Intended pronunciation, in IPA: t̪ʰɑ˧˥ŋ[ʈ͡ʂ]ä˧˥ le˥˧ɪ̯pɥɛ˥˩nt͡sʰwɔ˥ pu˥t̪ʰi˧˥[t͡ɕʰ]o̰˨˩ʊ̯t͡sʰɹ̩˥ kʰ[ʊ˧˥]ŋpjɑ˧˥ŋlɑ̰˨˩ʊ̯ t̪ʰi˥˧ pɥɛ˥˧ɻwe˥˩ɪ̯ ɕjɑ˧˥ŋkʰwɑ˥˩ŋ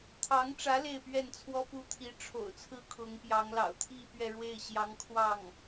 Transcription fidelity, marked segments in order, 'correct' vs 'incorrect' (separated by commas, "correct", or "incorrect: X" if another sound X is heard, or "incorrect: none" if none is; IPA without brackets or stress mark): correct, incorrect: ʈ͡ʂʰ, correct